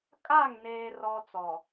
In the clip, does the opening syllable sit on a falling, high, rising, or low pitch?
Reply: falling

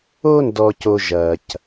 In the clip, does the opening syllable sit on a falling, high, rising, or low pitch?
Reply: high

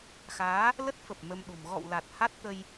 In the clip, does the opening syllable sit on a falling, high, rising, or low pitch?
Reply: rising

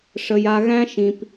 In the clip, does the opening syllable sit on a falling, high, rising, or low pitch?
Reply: low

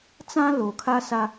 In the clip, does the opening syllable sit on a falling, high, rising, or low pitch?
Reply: high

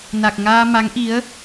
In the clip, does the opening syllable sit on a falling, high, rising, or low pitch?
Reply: low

